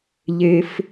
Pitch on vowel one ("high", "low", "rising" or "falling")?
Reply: low